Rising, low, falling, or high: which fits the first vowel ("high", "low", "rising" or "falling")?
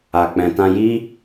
low